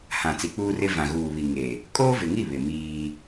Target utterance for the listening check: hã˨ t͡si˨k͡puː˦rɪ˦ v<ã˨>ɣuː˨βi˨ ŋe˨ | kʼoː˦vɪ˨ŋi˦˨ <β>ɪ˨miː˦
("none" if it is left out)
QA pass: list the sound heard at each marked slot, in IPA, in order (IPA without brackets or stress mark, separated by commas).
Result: ã˨, β